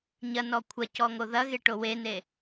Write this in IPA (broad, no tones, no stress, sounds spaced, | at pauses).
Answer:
ɲ ɐ n ɔ kʷʰ ɐ c ɔ ŋ o ð ɐ ɣ e ʈ o w e n e